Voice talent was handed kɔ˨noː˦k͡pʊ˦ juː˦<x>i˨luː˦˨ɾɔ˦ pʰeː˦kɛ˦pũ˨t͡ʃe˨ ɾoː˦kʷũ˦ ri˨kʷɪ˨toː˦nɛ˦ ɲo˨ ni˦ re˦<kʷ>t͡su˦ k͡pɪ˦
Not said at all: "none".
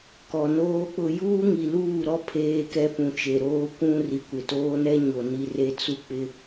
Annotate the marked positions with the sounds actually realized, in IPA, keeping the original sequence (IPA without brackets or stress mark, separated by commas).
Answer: ŋ, none